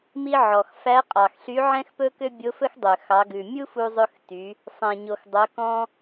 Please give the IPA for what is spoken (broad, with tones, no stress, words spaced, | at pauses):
mi˧ ʕɔ˩x fæ˧˥qʼɑ˩xɬy˧˥ʕɛ̃˥x pɵ˥kø˥bʲo˧˥ fɵ˥xdˤø˩ xɑ˩˧ɡʉ˩ mʲu˥fu˧zˤɵ˧xty˩˧ | sˤɛ̃˩ɲo˩x dˤœ˩˧ kɔ̃˧